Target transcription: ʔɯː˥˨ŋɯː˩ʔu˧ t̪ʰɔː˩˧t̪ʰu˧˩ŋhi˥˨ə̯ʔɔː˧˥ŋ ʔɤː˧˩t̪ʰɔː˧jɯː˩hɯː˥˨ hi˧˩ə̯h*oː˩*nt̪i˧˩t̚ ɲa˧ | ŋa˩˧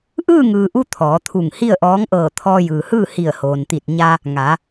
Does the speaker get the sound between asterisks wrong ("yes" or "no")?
no